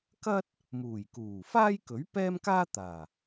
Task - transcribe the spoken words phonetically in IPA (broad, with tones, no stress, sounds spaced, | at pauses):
k ɐ˥ t̚ | m uː˨˩ j k uː˨˩ f aː˥ j k ɵ˨˥ ɥ p ɛː˥ m k aː˥ t̪ aː˨˩